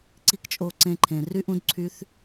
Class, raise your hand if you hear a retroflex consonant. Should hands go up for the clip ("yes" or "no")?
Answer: no